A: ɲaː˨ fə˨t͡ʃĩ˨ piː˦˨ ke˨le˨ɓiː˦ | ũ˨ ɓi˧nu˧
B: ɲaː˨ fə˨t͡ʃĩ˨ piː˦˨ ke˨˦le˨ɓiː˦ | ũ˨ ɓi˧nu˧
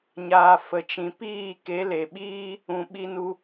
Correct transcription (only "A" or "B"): B